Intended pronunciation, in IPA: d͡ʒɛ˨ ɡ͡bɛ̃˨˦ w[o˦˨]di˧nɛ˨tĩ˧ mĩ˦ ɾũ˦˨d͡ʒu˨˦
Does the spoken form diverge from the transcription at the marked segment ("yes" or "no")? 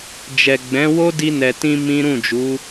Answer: yes